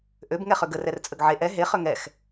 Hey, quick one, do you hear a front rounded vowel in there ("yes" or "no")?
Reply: yes